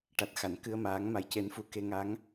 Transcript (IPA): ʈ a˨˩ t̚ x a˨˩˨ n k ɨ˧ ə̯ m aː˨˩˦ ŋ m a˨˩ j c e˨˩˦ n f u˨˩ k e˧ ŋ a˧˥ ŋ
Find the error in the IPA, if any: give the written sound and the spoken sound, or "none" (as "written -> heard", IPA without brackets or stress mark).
none